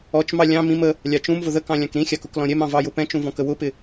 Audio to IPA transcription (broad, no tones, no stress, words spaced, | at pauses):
ɔt͡ʃmɑ lʲɑ̃ mĩm ə | lʲɑt͡ʃũmvʊ ðəkɑ̃ lʲɑ̃kɾĩxʲɑk ʊklɔ̃ɾʲɛmɑ̃ vɑjʊpɛ̃t͡ʃũ vɔ̃kəwʊpɪ